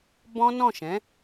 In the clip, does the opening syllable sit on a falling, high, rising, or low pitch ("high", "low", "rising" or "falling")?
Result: high